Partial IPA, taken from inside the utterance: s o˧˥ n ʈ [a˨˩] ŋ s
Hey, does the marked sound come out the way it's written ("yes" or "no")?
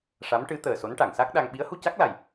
no